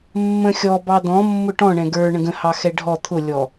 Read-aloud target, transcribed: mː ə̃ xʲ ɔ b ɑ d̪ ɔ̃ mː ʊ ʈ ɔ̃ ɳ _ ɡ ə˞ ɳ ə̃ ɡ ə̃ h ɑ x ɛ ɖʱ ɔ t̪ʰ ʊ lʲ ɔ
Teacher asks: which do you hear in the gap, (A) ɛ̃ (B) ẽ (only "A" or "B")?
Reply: A